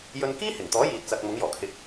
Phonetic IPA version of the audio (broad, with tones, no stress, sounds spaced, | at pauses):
j ɵ˧ n k iː˥ h ɪ˨˩ ŋ t̪ ɔː˨˥ j iː˨ t̚ t͡s ɐ˨ k̚ m ʊ˨˥ ŋ j ɔː˨˩ kʰ ɪ˧ k̚